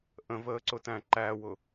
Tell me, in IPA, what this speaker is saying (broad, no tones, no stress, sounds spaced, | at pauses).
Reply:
ʔ ə̃ v əː ǀ ʊ t æ̃ ǃ æ w ʊ